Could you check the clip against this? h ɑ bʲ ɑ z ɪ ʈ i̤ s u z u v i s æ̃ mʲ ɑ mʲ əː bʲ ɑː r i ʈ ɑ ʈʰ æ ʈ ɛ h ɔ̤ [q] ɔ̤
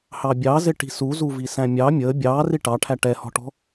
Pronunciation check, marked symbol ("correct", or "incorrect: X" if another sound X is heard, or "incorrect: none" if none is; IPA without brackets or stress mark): incorrect: ʈ